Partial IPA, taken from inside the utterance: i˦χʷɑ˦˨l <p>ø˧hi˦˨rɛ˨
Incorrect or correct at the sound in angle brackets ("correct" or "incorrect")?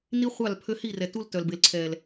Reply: incorrect